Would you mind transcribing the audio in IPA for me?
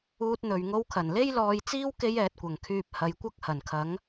uː˥ t̚ n̪ ɵ˧ ɥ ŋ o˥ w kʰ ɐ˨˩ n l e˥ j l ɔː˧ j t͡s iː˥ w k e˥ j ɛː˧ t̚ kʷ ɐ˨ ŋ kʰ yː˧ p̚ h ɐ˨˧ j kʷ ɐ˥ k̚ h ɐ˨˩ n kʰ ɐ˨˥ ŋ

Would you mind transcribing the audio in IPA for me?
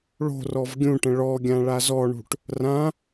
ɭ o̤ r ɔ v ɡʲ ũ ʈ ə̃ ɭ ɔ ɡʲ ã ɭ a z ɔ ɳ ṳ ʈ | r ã

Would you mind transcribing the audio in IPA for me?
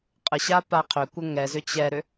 qʼ ə ɕ a p a qʰ ʏ kʷ ə ŋ ɛ z ʏ t͡ɕ ɛ ɾ ʏ

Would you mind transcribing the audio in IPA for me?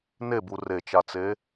n e b u r e t͡ʃ a t͡s e

